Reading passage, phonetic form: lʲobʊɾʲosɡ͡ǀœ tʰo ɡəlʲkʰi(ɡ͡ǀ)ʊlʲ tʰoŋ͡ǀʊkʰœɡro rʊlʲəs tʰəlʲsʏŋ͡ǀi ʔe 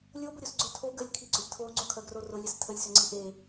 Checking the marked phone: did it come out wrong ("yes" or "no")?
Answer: no